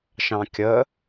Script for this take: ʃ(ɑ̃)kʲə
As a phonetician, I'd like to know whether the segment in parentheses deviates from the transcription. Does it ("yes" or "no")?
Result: no